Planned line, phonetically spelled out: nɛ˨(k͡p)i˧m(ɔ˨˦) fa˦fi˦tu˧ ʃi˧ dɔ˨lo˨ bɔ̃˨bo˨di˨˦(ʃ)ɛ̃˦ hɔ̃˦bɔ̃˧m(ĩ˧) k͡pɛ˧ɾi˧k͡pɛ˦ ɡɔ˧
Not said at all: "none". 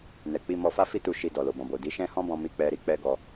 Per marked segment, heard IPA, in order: k͡p, ɔ˧, ʃ, i˧

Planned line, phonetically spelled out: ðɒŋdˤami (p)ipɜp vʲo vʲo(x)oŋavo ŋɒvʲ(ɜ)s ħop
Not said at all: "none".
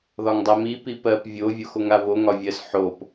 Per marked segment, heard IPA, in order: p, x, ɜ

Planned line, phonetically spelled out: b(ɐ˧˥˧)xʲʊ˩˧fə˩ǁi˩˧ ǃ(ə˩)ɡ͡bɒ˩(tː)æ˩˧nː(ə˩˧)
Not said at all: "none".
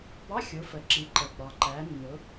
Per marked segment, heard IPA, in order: ɑ˧˥˧, ə˩, ǃ, ʊ˩˧

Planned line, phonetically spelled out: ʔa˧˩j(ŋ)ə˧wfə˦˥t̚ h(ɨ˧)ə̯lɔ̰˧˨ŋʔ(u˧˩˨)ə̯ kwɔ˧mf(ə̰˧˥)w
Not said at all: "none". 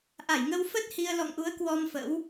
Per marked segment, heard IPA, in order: ŋ, i˧, u˨˦, ə̰˧˥

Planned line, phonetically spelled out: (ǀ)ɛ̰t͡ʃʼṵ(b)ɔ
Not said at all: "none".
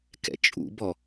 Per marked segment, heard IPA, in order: k, b

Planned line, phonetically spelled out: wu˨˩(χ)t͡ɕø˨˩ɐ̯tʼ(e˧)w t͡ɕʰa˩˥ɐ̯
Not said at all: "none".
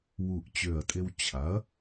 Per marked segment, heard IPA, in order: ʔ, e˧

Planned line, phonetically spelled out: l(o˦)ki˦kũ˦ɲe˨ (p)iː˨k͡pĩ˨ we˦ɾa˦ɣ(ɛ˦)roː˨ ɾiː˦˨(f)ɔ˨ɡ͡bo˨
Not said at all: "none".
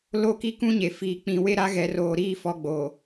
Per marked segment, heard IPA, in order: o˦˨, f, ɛ˨˦, f

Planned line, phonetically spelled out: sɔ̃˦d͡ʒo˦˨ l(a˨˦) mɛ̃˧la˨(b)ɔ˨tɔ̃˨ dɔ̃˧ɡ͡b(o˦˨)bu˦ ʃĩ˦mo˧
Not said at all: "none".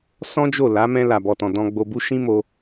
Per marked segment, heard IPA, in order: a˨˦, b, o˧

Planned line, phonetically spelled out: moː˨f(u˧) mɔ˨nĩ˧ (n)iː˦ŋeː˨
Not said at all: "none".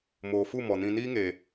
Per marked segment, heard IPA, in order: u˦˨, n

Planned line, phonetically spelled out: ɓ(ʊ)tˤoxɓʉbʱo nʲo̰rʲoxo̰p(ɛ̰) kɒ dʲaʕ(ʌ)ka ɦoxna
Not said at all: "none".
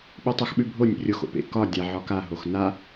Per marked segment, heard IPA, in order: ʉ, ḛ, ɒ

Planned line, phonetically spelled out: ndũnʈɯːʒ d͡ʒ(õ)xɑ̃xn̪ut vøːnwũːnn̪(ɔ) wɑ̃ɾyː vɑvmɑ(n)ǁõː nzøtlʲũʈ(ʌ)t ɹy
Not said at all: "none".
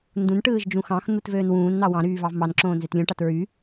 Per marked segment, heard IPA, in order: ũ, ɑ, n, ɑ

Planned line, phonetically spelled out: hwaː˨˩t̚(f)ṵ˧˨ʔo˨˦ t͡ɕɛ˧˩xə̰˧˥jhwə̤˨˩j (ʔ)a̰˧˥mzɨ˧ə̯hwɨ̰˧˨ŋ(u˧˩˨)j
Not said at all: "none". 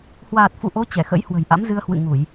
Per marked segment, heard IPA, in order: f, ʔ, u˧˩˨

